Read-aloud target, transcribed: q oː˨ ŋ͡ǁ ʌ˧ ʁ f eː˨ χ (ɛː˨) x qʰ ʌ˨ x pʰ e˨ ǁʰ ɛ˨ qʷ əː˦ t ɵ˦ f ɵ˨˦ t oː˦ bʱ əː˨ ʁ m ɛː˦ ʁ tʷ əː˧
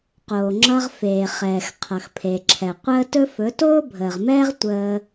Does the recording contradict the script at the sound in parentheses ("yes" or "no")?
no